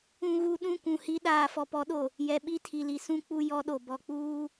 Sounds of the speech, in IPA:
ũ˨ɣu˨ɗũ˦˨ kʷũ˨hi˦ ɗaː˨fɔ˨pɔ˨˦ɗo˨ | jɛ˨ɓi˦˨tʰi˨li˨ sũ˦ k͡pu˦jɔ˦ɗo˨ bɔ˨k͡puː˦

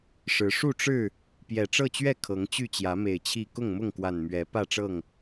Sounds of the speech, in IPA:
ʂɻ̩˨˦ ʂu˥˨ʈ͡ʂɻ̩˥˨ | pjɛ˨˩ʈ͡ʂɤ˥˨t͡ɕɥɛ˥˨ kʰɤ˨˦ŋt͡ɕy˥˨t͡ɕjä˨˦ me˨˩ɪ̯t͡ɕʰi˥˨ kʊ˥˨ŋmʊ˥˨ŋkwa˨˩n mɥɛ˨˦ pä˥˨ʈ͡ʂɤ˥˨ŋ

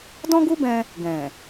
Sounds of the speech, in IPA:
dɔ̃˦ɡu˦bɛ̃˧ | ɡɛ̃˨

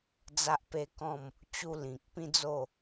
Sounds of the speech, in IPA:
d͡za˦ʔpe˦kɔ̃˥˧m | t͡ɕu˧ lĩ˨k̚ pĩ˦d͡zo˥˧

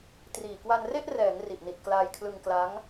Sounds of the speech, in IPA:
triː˨˩kwa˧nre˥˩ʔ rɛː˩˦ŋ ri˨˩ʔni˨˩t̚ klaː˧jkʰlɯ˧ŋ kla˦˥ŋ

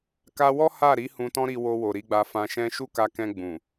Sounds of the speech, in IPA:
ka˧wɔ˦ ha˦˨ɾi˨˦ hũ˧tɔ̃˦ɾi˧wo˧ wo˨ɾi˧ɡ͡ba˧ fã˧ʃɛ̃˦ ʃu˦ka˧kɛ̃˧ ɡ͡bũ˨

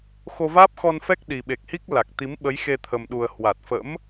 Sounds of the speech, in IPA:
xo˧vaː˦˥p̚xɔ˧nfɛ˦˥k̚ ɗi˨˩ɓe˨˩k̚hi˦˥k̚ la˨˩k̚t̪i˨˦m ɓə˨˦jxe˧t̪ʰə˨˩mɗu˨˩ə̯ hwa˨˩t̚fə̰˧˥m

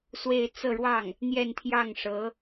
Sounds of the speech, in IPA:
swe˥˧ɪ̯ t͡sɤ˥˧ɻwɑ˥˩ŋ | n̪jɛ˥˧nt̪ʰjɑ˥˩ŋ ʂɤ˧˥

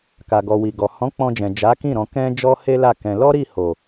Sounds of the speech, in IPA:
ka˨ɡɔ˨wi˨ɡɔ˨ hɔ̃˨˦k͡pɔ̃˧d͡ʒɛ̃˨ d͡ʒa˨˦kĩ˦˨ ɾɔ̃˧kɛ̃˦ d͡ʒɔ˦he˦la˦˨kɛ̃˧ lɔ˦ɾi˦˨ho˨

